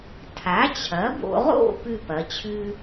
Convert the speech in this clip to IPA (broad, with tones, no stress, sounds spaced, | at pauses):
tʰ a˩˥ t͡ɕʰ ɐ˩˥ b o̰˧ ʁ o̰˥˨ p ʉ˥˨ p ɐ˩˥ t͡ɕʰ ʉ˥